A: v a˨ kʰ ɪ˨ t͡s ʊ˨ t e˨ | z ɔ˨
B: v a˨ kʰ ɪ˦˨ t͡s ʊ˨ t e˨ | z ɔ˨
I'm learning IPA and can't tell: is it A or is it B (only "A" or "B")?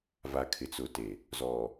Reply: A